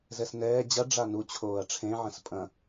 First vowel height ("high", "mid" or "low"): mid